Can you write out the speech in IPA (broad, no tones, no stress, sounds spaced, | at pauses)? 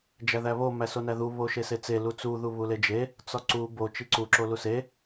d͡ʒ æ ð æ β o m æ s o n æ ð u β o ʃ e s e t͡s e l u t͡s u ð u β u l e d͡ʒ e | t͡s ɒ ǀ u b o t͡ʃ i ǀ u ǁ o l u s e